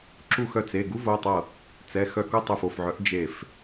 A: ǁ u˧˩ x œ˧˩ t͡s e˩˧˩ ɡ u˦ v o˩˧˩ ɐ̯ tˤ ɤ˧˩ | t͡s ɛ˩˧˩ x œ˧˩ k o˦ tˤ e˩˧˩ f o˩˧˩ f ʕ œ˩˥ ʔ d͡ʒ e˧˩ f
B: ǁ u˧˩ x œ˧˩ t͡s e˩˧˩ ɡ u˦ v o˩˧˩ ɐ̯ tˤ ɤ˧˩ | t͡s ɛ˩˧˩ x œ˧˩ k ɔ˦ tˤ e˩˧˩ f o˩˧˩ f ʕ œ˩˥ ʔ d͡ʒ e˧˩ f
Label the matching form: A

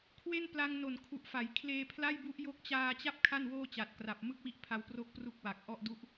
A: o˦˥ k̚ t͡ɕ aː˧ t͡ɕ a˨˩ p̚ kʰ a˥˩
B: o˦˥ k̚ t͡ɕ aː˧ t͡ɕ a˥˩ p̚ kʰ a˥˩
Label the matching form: B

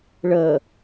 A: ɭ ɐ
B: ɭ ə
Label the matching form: B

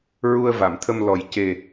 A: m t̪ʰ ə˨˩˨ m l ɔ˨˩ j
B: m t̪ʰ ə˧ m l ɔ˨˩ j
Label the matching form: B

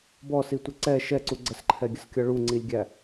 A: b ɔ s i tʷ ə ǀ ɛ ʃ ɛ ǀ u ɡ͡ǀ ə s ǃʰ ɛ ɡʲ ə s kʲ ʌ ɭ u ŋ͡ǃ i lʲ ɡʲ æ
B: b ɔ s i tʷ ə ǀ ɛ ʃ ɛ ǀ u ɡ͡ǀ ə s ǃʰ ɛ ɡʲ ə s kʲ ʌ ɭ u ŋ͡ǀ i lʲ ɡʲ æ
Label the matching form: B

